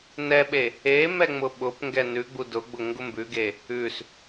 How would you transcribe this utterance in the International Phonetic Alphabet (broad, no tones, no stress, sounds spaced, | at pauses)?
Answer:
n ɛ ɓ e | e m ɛ ŋ͡m ʊ ɓ ʊ p ŋ ɡ ɛ n ʉ ɡ͡b u d ʊ ɡ͡b ʊ ŋ ɡ ʊ m b ʉ ɡ e | ʉ s